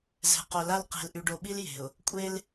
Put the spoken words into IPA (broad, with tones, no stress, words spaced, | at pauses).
zɛ̤˨qo˨la˦l qe̤˨lʔy˨ɖo˨ɓi˦l je̤˨ʊ̯ | kʷʼe˦l